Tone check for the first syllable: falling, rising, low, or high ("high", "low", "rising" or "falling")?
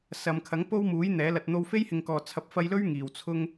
low